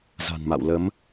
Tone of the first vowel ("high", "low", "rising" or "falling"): low